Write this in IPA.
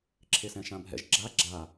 ǁʰ e s ɛ̃ ʃ ã bʱ ɛ̰ ʒ ɡ͡ǁ a ɡ͡ǁ a

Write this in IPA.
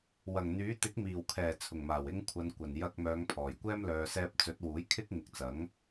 w ɐ˨˩ ŋ n̪ yː˨˥ t̪ ɪ˨˥ k̚ m iː˨˩ w kʰ ɛː˨˩ t͡sʰ ʊ˨˩ ŋ m aː˨˩ w ɪ˧ ŋ kʷʰ ɐ˨ n kʷ ɐ˨˩ n j ɐ˧ k̚ m œː˨˧ ŋ pʰ ɔː˨˩ j kʷ ɛː˥ m l œː˨ s ɛː˧ p̚ t͡s ɵ˨˥ t̚ w uː˨˥ j kʰ ɪ˥ k̚ ŋ ɪ˨˥ k̚ t͡s ɐ˨˥ ŋ

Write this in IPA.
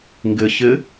ŋ ɡ ɪ ç ɪ

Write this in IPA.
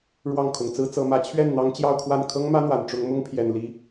ɻ w ɑ˥˩ ŋ kʰ ʊ˨˩ ŋ t͡s ɹ̩˥ t͡s ɤ˧˥ m ä˧˥ t͡ɕʰ ɥ ɛ˥˩ n n̪ ɑ˧˥ ŋ t͡ɕ j ɑ˥˧ ʊ̯ kʰ w a˥˩ n kʰ ɤ˥ ŋ m ä˥ n̪ w a˨˩ n ʈ͡ʂ ʊ˧˥ ŋ m ʊ˥ ŋ pʰ j ɛ˨˩ n l i˧˥

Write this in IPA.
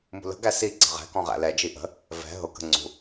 m ṳ l ə̤ ɡ æ s i ɡ͡ǀ ə̤ ʁ ɛ̤ k ɔ̃ ʁ æ̰ l ɛ d͡ʒ i ʔ ə̤ | v ɛ̤ ɦ ʊ k ə̤ ŋ͡ǀ ṳ

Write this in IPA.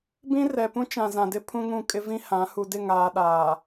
b ĩ˦ r ɛ˨ p ũ˦ t͡ʃ ã˨ z ã˨ d ɪ˦ pʰ ũ˦ ŋ ũ˦˨ kʼ ɪ˦ v ĩ˦ h ã˨˦ h u˨ d ɪ˦˨ ŋ aː˨ ɗ aː˨

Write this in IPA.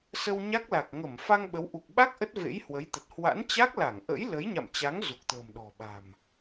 s ə˧ w ɲ a˦˥ k̚ l a˨˩ k̚ ŋ ə˧˩ m f a˧ ŋ ɓ ə˨˦ w ʔ u˨˩ k̚ ɓ a˦˥ k̚ ʔ ə˦˥ t̚ v ḛ˧˥ j h w ə˨˦ j t̪ ə˨˩ t̚ h w a̰˧˥ n t͡ɕ a˦˥ k̚ l a˧˩ ŋ ʔ ə̰˧˥ j l ə˨˦ j ɲ a̰˧˨ m t͡ɕ a˨˦ ŋ z u˨˩ k̚ t̪ ə̤ː˨˩ m ɗ ɔ̤˨˩ ɓ a̤˨˩ m

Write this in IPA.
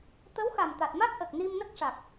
t̪ ə˧˥ w x a˨˩ m t̪ a˨˩ t̚ m a˦˥ k̚ ʔ ə˨˩ k̚ n i˧ m n ə˦˥ k̚ ʂ a˨˩ k̚

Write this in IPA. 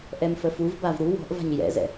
ʔ ɛ m f ə f u v b a v ɾ u w ɔ̤ ʔ v a̤ ɲ j ɛ̰ z ɛ̰

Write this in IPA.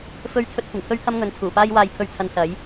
f ɵ˧ ɥ t͡sʰ ɵ˧ t̚ kʷ ɪ˨˩ ŋ pʰ ɵ˥ ɥ t̪ʰ ɐ˥ m ŋ ɵ˨˧ n t͡sʰ uː˨˩ p aː˥ j w aː˧ j pʰ ɵ˧ ɥ t͡sʰ ɐ˧ n s ɐ˨˥ j

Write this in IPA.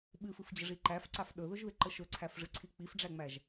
ɓ ɨ f ɨ f d͡ʑ ə ʐ i ǃ æ f ǀ a f ɗ ɵ ð ɵ ʒ ð ɪ ǃ ə ʃ ɵ ǀʰ æ f ʐ ɨ ǀʰ i k͡p i f ɖ͡ʐ æ ŋ͡m æ ʒ

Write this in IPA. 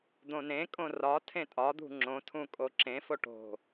d̪ õ n ẽ kʼ õ r ɒ tʰ ẽ tʼ ɒ d̪ ṳ ŋ͡ǁ õ tʰ ũ kʼ o ǁ ẽ f o ʈ o̤

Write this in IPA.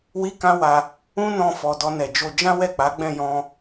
w i˦ k ã˦ w a˧ | ũ˦ n ɔ̃˧ f ɔ˨ d ɔ˧ n ɛ˨ d͡ʒ o˧ d͡ʒ ã˦ w ɛ˦˨ k͡p a˨˦ ɡ͡b ɛ̃˦˨ j ɔ̃˧

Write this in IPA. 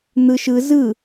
n̪ ɯ ʃ ɯ z ɯ

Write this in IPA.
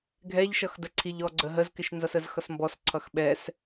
ɡʱ ɛ ʎ ʃ ʌ x d ə ǀʰ i ʎ ɔ ɡ͡ǀ ə ɦ ə z k ɪ ʃ n z ʌ s ə z x ʌ s m b ɔ s ǀʰ ʌ x ɓ ɛ s

